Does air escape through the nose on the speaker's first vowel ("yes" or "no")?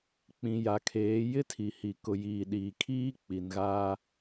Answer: yes